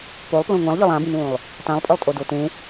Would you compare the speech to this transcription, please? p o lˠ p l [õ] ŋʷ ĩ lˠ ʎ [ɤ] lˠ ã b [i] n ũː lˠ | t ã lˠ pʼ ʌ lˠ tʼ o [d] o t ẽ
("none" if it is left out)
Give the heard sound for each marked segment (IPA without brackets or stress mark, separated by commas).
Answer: õ, ɤ, ĩ, d